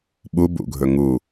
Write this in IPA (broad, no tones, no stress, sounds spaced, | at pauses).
ɓ u b ṵ ɡʱ ɵ ŋ u